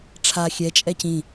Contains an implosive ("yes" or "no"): no